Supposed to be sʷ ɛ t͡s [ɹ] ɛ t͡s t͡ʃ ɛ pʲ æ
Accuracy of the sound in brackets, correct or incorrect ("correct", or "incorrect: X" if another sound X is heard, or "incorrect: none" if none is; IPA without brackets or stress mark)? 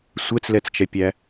incorrect: l